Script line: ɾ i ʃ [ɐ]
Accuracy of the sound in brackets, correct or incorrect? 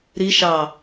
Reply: incorrect